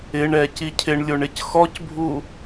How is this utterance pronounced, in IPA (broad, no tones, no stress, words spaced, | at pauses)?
ɪɳɛ cicʰɪɳlʲoɳ ɪcxɔcbʱu